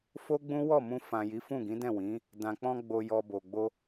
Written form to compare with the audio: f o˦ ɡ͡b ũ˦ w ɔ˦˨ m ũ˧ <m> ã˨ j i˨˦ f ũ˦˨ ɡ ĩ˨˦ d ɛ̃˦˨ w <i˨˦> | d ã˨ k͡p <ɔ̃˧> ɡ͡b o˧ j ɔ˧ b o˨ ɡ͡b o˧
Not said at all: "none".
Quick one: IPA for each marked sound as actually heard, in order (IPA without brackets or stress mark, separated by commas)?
f, ĩ˨˦, ɔ̃˧